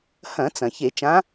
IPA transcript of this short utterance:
hɐ̃˧˩˧t͡sɐ̃˩ çe˧˩˧ t͡ʃã˨˦

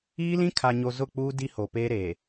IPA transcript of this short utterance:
iː˦lĩ˦kʰa˨ɲo˨ zʊ˦˨k͡puː˦ di˦ho˨ peː˦ɾeː˨

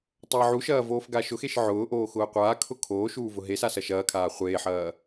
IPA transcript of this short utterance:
tˤɐːʕuʃɐː voːfɡaʃʊxeʃ ʕʊːʔoː xʊːqʷaːkʰʊ kʰoːʃuː vʊɦesa sɐʃɐːkʰaː χʷeːħɐː

